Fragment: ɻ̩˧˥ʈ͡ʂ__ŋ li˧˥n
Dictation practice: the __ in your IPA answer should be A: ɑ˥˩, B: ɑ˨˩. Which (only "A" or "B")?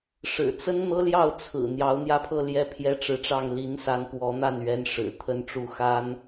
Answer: A